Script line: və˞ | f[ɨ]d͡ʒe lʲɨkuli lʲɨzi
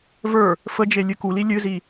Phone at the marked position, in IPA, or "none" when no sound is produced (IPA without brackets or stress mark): ə